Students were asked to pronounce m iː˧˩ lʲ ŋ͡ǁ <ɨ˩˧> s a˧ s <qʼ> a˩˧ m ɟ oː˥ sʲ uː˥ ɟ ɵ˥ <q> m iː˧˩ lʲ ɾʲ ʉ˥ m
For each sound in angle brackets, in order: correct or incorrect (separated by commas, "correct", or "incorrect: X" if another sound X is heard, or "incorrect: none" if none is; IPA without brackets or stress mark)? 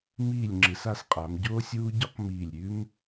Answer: correct, correct, correct